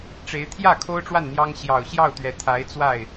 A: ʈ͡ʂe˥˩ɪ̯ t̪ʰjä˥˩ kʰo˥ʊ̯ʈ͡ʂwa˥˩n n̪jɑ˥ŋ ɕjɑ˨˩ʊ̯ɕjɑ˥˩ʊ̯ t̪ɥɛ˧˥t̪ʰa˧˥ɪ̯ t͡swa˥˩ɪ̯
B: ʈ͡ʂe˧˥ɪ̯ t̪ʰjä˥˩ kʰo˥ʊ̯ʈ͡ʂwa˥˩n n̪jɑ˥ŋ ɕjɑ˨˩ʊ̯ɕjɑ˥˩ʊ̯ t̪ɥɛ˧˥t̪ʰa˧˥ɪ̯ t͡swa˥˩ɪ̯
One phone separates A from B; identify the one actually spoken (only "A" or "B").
B